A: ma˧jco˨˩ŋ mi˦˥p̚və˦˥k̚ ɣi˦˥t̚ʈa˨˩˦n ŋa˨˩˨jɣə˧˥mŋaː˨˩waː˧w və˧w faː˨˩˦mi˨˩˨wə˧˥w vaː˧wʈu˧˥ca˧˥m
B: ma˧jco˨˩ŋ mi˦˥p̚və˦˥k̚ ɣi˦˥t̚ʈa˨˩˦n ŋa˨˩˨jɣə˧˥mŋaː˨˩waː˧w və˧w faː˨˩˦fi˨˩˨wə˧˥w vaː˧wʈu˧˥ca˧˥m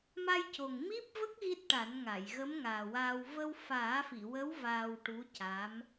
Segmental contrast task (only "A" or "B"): B